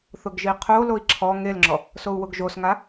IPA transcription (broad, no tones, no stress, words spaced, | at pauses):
θʊɡʒiqʰoloi̯ ǁʰɔ ŋelŋ͡ǁɔ | sou̯wʊɡʒosŋa